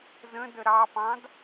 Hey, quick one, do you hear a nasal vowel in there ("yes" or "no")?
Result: yes